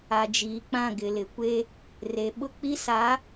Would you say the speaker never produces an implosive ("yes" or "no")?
no